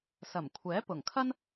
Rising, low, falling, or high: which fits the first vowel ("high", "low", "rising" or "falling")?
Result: low